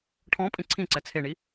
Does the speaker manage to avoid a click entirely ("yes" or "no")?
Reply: no